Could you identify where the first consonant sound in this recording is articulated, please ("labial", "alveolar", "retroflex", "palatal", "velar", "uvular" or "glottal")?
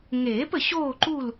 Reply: velar